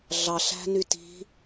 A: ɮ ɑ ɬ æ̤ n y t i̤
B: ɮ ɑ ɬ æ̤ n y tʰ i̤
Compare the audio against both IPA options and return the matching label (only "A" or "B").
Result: A